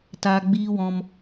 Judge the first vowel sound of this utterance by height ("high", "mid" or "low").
low